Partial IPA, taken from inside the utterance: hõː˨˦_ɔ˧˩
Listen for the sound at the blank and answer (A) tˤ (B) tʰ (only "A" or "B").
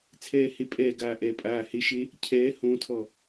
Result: B